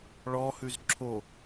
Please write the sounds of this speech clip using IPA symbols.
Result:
ɭɔhʉz ǁʰo

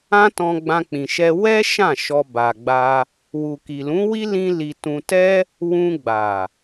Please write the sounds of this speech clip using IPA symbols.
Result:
ã˦tɔ̃˧ɡ͡bã˧ k͡pĩ˨ʃɛ˧ wɛ˦ ʃã˦˨ʃɔ˧ ba˨ɡ͡ba˧ | wu˨ki˨lũ˨˦wi˦ lĩ˦li˧ tũ˧tɛ˦ | wũ˧ɡ͡ba˨

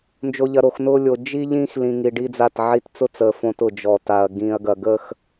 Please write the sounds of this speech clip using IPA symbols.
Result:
nd͡ʒo˨ʎɐ˨ɾo˨xnʊː˦ lʲo˨ d͡ʒi˦ ʎĩː˦x lĩ˨ŋi˨ ɖi˦d͡za˦˨tʕi˦t t͡sʊ˦t͡səː˨ fõ˦t ʊ˨d͡ʒɔ˨ta˨ɐ̯ ɡĩː˨ɐ̯ ɡɐ˨ɡə˦˨x

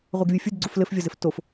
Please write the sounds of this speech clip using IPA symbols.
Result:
ʁʷɛɡvʲofʲud ɡ͡ǀuflɘfvʲɔzɘf tof

